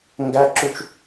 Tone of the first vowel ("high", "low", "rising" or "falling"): high